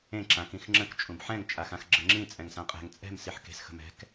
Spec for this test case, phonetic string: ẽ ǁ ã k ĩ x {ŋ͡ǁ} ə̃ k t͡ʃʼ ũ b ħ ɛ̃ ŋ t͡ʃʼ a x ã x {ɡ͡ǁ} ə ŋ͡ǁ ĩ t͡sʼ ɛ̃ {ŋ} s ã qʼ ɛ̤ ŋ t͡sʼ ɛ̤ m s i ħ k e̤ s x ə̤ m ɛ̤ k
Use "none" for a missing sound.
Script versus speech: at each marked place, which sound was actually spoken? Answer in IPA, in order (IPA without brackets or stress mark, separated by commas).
ŋ͡ǁ, ɡ͡ǁ, ŋ